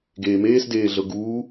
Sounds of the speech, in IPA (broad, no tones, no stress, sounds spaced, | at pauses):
ɡ eː m eː s d eː ɮ ɤ ɡ uː